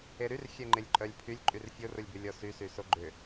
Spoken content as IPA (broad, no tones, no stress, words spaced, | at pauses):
eɾyr xʲɛŋ͡ǃɪlʲǃʼœlʲpʰylʲ ǃʼyrfʲorʊlʲbʏ lʲɔsysyso ɡ͡ǃʏ